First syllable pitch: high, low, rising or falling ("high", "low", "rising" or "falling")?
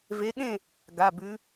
rising